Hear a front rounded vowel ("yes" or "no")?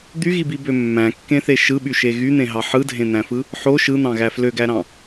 yes